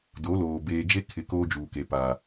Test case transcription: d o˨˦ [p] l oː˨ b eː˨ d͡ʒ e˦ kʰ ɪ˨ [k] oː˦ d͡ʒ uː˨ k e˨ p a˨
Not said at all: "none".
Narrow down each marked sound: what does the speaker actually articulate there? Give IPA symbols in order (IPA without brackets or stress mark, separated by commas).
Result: none, k